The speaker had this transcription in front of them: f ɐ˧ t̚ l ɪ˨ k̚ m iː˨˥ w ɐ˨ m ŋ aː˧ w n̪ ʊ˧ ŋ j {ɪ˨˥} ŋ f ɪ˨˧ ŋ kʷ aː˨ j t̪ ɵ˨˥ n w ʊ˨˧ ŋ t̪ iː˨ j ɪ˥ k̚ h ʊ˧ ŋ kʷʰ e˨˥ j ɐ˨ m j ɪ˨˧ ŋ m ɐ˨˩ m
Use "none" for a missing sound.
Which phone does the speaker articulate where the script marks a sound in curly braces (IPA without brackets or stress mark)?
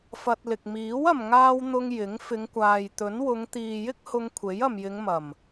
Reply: ɪ˨˥